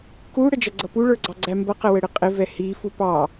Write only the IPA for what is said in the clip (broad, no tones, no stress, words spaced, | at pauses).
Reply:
ku ɽəd͡ʒʌɡ͡ǀʌpu ɭə˞ɡ͡ǀɑɡ͡ǀæmbʌ qəwəɽɪqʼɪ vɛhi fupɑ